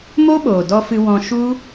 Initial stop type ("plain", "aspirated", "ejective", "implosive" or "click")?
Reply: implosive